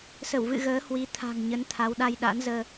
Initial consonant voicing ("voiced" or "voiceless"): voiceless